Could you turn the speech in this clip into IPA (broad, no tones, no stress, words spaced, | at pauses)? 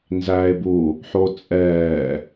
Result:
nzæːe̯bu | ħot͡sʼɛː